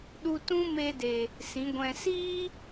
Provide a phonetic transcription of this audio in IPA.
ɗ u˧ t ũ˦ m e˧ d e˨ | s ĩ˨˦ ɡʷ ɛ̃˧ s iː˦

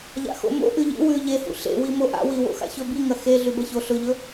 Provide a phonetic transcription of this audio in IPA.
ʎ a̰ x o̰ m o̰ ʔ ʉ ʎ ḭ w ʉ ʎ e h ṵ ɬ ḛ w i m o ʔ a̰ w i w o̰ x a̰ ç ɵ b i ŋ ɐ x e ɮ ʉ b ɐ ç o ɬ ɵ ʎ ɵ

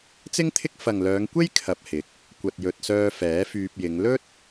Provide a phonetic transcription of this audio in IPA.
t͡s ɪ˥ ŋ t̪ʰ ɪ˥ k̚ f ɐ˨ ŋ l œː˨˧ ŋ kʷ e˥ j kʰ ɐ˨ p̚ h ɪ˨˥ k̚ | kʷ ɐ˨ t̚ j ɵ˨ t̚ s œː˧ f ɛː˨˥ f yː˧ p̚ j ɪ˨˧ ŋ l ɵ˥ t̚

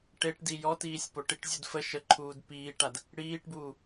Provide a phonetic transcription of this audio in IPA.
ʈ e ʈ d i j ɔ t iː sʲ p o ʈ i ʈ zʲ u d f ə ʃ ə ǃʰ uː d p iː ʈ a d | ɽ iː ʈ b uː

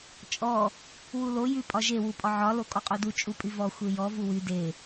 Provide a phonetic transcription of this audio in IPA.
t͡ʃʼ ɔ | w u l o j y pʼ ɒ ʒ e w u pʼ ɒ ʕ ɒ l o kʼ ɔ qʼ o d u t͡ʃʼ u pʼ y v ɔ xʷ e j ɔ v u w y d e

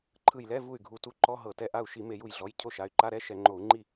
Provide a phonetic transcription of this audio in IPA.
ǃʰ ɯ˧˩ j l ɛ˧˥˧ v u˥˩ y̯ ɡʱ u˧˩ t u˧˥˧ ǃ ɔ˧˥˧ ɦ ɤ˧˩˧ t ɛ˧˩ ʔ a˥˩ u̯ ʃ i˧˩˧ m e˧˩˧ j u˧˩ j ɮ ɔ˩˧˩ j cʰ o˥˩ ʃ a˩˧˩ y̯ ǃ a˧˥˧ ɾ ɛ˧˥˧ ʃ ɛ˧˩˧ ŋ͡ǃ o˧˩˧ u̯ ŋ͡ǃ i˥˩

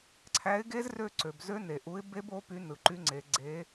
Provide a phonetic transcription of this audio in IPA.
ǀʰ æ˨˥ ɪ̯ ɡ e˦˥ z r ø˦˨ ǀ ø˩ b z ø˦˥ n e˩ ʔ u˨˥ ɪ̯ b e˦˥ b o˨˥ p y˨˥ n ɯ˩ ǃ y˨˥ ŋ͡ǀ e˩˧ ɡ͡ǀ e˨˥

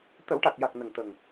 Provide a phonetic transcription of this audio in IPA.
t̪ ə˨˩˦ w ʈ a˨˩ k̚ j a˨˩ k̚ n ə˨˩ ŋ t̪ ə˨˩ ŋ

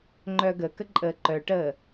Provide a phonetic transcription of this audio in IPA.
ŋ͡ǃ œ ɡ ə k ə ǃʼ əː ǃ œ ʈ əː

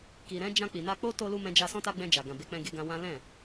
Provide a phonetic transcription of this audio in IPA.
k i˨ ɾ ɛ̃˨˦ d͡ʒ ã˧ k͡p i˨ n a˧ k͡p o˦ t o˧ l u˧ m ɛ̃˧ d͡ʒ a˧ s ɔ̃˦ t a˦ ɡ͡b ɛ̃˧ d͡ʒ a˨ ɡ ã˨ b e˨˦ k͡p ɛ̃˧ ɡ e˧ ɡ ã˧ w ã˦ l ɛ̃˦˨

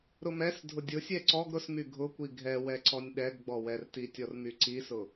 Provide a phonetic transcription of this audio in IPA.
ɾ ʊ m ɛ s dʱ ʊ dʲ ʊ sʲ ɛ ǀ ɔ ɡ ɾ ʊ s m y ɡʱ ʊ kʷ i ɡʱ ɛ w ɛ ǀ ɔ nʲ ɗ ɛ ɡ ɡ͡b ɔ w ɛ r t i tʲ ɔ r m y ǀ i s ʊ

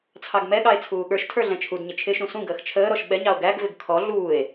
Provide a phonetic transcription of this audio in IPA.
t͡sʰ ɑ ɡ m ɛ ɠ ɑ e̯ t͡sʰ uː ɠ ə˞ ʃ tʰ ə˞ ɮ ɛ̃ t͡ʃʰ u d ɲ ɪ t͡ʃʰ ɪ ʃ ũ s ũ ɡ əː x t͡ʃʰ əː ɾ ɔ ʃ ɓ ɛ ɲ ɑ o̯ ɡ æ ɡ v ɪ ɡ kʰ ɔ ɮ uː e̯

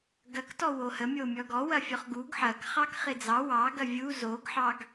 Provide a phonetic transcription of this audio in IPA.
ɡ ɐ k t ɔ w o h ə mʲ o mʲ ɔ ɡ ɔ w ɐ fʲ ɔ χ ɡ u ɡ ħ ɐ k χ ɑ k χ ɪ d͡z ɑ w ɑ ɡ ɐ vʲ u z o ɡ ħ ɑ ɡ

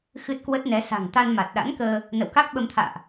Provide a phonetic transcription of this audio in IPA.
x ɨ˦˥ t̚ k w ə˦˥ t̚ n ɛ˨˦ s a̤˨˩ ŋ t̪ a˧ n m a˨˩ t̚ ɗ a̰˧˥ n k əː˧ | n ə̰˧˨ w k a˦˥ k̚ ɓ ə˧ m t̪ʰ a̰ː˧˨ ʔ

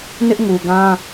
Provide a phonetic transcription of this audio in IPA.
n ɪ˦ ʔ ŋ u˨ ɡ ã˦

